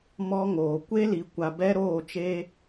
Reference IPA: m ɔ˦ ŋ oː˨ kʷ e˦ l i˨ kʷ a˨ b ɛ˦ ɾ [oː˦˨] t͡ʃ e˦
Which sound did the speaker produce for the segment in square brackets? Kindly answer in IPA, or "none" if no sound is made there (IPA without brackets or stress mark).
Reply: oː˦˨